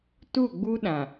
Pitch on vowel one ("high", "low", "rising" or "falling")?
falling